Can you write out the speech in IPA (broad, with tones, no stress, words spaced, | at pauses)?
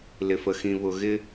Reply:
lɪ˨f ə˨xĩ˨βʊ˨ɣɪ˦